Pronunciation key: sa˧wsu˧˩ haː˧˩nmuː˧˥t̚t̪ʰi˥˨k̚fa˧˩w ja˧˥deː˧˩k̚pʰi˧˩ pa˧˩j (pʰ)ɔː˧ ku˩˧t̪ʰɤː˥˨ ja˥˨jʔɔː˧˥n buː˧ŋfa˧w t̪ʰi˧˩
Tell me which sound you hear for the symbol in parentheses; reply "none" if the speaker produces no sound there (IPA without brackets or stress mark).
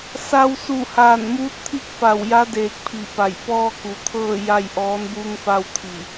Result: p